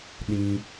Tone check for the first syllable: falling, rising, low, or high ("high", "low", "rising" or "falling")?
high